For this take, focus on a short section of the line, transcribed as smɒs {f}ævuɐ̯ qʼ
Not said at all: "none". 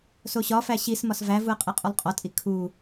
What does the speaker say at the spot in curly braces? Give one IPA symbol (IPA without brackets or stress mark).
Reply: v